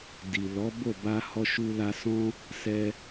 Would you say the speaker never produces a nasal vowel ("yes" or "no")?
no